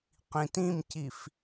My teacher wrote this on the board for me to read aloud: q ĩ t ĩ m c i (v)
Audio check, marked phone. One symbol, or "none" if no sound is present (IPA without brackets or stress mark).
f